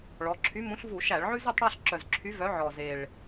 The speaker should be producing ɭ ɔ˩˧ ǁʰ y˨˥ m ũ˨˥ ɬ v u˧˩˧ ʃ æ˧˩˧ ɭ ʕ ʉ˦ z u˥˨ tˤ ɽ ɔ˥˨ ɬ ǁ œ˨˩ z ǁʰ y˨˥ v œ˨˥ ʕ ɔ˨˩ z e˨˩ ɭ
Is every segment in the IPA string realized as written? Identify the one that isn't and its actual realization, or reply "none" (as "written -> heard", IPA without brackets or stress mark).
none